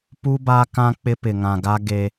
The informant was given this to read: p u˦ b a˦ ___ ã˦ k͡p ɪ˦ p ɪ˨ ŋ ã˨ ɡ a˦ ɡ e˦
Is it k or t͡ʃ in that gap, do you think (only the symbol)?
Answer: k